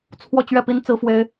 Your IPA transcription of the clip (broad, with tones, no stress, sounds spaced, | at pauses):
t͡sʰ w ɔ˥˧ t͡ɕ ɥ ɛ˥˩ p i˥ n t͡s ɹ̩˥ f w e˥ ɪ̯